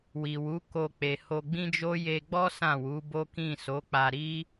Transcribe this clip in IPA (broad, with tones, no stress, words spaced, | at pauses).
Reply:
wi˨wu˨˦ko˧ k͡pe˨ho˧ɡ͡bĩ˦d͡ʒo˦ je˧ɡ͡bɔ˦ sã˦˨wu˨˦ bo˦kĩ˦˨ so˨˦k͡pa˧ɾi˦